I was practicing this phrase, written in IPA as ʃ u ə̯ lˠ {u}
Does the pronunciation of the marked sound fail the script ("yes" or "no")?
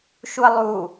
no